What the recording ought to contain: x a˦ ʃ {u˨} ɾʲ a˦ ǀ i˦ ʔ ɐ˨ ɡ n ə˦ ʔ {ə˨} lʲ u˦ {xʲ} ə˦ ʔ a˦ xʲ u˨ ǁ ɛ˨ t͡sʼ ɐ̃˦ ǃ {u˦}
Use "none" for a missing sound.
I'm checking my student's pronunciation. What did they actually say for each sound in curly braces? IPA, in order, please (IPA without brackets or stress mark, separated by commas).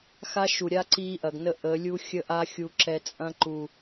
u˨, ə˨˦, xʲ, u˨